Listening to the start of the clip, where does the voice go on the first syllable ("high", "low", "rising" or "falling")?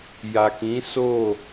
low